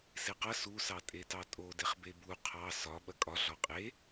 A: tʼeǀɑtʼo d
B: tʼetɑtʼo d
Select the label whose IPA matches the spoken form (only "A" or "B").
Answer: B